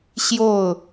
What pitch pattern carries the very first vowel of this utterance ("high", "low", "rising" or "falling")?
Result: falling